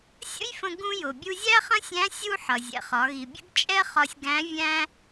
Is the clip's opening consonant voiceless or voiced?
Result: voiceless